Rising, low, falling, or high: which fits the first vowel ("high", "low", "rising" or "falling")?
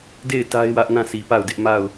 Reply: falling